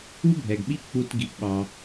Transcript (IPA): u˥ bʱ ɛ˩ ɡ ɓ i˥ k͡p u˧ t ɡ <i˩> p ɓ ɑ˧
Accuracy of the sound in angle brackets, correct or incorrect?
incorrect